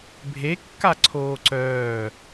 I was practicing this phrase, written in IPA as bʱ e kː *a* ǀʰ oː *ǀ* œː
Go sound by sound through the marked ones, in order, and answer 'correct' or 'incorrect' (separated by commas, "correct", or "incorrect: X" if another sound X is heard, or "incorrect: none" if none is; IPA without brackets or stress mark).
correct, correct